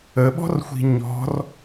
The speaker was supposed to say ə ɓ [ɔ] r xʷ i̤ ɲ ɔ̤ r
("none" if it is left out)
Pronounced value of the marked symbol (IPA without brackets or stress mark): ɔ̤